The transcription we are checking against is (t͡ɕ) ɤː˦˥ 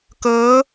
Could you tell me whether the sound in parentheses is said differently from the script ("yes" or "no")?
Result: yes